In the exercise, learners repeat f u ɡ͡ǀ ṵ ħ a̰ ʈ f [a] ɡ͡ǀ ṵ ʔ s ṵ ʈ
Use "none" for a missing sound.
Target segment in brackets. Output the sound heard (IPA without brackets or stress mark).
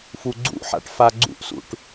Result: a